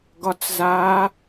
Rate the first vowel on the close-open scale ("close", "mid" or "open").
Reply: open